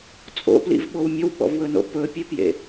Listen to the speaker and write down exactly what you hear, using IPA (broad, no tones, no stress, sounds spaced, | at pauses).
t͡sʼ o̰ p l ḭ v ɓ o w mʲ ɵ w ɓ ɔ̰ v w ɵ n o̰ p ɵ pʲ e p j ḛ